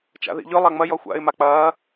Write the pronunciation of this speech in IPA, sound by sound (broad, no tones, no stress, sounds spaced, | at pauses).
t͡ʃ a̰ ð ḭ ʎ ɵ lˠ a ŋ͡m ɐ j ɔ xʷ a̰ ɪ̯ m a k͡p ɐː